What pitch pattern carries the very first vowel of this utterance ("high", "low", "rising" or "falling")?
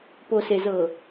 low